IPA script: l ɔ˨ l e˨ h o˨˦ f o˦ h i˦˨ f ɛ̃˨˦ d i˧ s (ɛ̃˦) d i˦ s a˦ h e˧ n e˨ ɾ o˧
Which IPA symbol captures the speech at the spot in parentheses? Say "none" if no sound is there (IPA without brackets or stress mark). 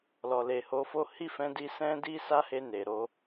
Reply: ɛ̃˦